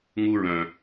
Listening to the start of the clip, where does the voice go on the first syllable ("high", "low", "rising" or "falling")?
high